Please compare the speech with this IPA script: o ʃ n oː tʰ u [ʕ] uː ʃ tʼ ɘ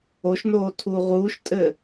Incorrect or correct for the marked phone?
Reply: incorrect: ʁ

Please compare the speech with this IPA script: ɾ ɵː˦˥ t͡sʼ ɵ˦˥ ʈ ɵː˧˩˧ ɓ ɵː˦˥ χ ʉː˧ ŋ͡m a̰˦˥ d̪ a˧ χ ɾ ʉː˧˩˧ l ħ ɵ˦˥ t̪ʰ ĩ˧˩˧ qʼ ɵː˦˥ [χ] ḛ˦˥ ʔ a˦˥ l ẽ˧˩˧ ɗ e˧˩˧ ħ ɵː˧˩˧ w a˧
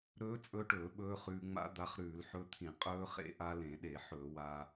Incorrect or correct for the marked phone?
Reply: correct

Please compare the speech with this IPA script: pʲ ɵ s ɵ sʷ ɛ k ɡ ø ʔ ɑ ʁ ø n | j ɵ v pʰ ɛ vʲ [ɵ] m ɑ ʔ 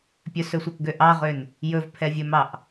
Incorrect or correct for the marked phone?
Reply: correct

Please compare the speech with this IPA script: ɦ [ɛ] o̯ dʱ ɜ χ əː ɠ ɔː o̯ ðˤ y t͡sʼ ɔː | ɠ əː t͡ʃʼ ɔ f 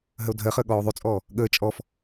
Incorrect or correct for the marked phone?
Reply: incorrect: ə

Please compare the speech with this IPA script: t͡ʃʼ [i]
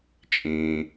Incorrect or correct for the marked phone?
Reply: incorrect: ĩ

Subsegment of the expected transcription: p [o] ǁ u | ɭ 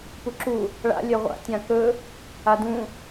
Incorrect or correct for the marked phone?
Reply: incorrect: u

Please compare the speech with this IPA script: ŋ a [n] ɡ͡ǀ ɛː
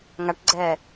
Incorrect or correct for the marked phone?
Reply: incorrect: ʈ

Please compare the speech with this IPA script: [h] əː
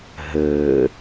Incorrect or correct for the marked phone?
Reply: incorrect: ɦ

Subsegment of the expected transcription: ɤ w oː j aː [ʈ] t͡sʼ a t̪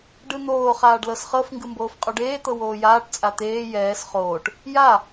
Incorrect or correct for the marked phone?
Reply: correct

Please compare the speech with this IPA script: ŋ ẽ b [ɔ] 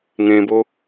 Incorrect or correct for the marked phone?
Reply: incorrect: o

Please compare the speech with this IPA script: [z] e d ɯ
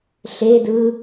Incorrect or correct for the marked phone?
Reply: incorrect: ɬ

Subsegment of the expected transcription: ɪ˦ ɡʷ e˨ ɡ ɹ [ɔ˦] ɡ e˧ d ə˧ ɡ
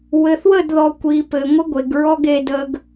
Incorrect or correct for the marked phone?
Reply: correct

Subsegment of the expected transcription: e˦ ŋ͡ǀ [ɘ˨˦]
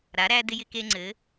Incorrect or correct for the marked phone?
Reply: correct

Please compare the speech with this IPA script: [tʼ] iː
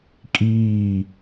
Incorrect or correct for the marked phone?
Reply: incorrect: kʼ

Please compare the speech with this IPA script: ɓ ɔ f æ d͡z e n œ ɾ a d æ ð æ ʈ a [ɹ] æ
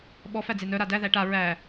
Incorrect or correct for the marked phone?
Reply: correct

